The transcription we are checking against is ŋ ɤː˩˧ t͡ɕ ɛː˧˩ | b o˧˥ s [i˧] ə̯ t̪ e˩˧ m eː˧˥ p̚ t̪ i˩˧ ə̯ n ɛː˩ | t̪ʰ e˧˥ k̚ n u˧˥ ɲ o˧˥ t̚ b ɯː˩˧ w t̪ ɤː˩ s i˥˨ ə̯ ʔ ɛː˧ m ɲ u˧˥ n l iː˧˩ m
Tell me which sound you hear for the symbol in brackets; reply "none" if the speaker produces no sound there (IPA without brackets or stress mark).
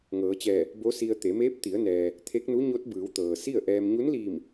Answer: i˧